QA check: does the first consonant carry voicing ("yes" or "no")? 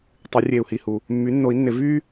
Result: no